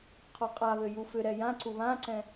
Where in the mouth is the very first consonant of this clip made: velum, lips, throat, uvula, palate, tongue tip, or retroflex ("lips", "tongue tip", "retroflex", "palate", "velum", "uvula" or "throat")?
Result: uvula